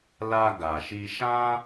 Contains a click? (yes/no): no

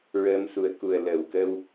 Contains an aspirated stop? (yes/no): no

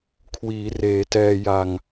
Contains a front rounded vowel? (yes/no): no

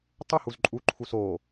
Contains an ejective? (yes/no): yes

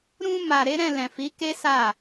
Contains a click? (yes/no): no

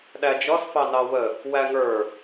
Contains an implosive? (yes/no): yes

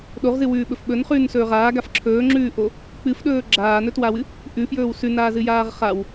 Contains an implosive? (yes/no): yes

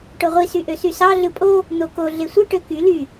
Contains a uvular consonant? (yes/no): yes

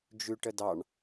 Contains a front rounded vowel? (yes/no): no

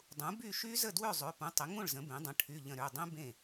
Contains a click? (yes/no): no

